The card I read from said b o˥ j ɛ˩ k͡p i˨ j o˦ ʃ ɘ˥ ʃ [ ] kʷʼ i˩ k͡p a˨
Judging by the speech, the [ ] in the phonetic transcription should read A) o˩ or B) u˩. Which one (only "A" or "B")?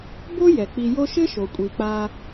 A